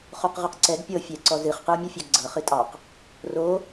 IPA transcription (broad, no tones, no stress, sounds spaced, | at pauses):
χ o q ʁ ɨ q ǀ ɛ ɡ pʲ ɤ fʲ ɛ ǀ ɔ z ɨ χ q ɨ o̯ mʲ u fʲ ɑ ɡ ɡ͡ǀ ɤ χ ɨ tʼ ɑ q | r o